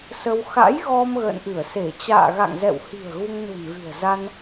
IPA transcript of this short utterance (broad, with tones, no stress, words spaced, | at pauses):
sə˧w xa̰˧˥jɣɔ˧m ɣə̰ː˧˨nʔɨ˧˩ə̯se˧˩ t͡ɕa̰ː˧˨ɣa̰˧˨ŋzɛ̰˧˨whi̤˨˩ə̯ ɣu˧ŋnṳ˨˩nɣɨ̤˨˩ə̯za˧n